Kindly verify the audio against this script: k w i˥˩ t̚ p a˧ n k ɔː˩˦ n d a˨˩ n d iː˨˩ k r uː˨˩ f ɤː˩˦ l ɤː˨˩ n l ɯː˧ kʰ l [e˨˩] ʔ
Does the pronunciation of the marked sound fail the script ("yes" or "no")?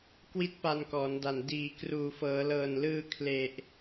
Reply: no